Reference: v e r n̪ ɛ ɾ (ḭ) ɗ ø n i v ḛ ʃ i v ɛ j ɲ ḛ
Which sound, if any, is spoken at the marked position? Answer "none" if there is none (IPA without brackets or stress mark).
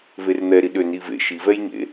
i